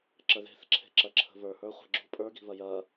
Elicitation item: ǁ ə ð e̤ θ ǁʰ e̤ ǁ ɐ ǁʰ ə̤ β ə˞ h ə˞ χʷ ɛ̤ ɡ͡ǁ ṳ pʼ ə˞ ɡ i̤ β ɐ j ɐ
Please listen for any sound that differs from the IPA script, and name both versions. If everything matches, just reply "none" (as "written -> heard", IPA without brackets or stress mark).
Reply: none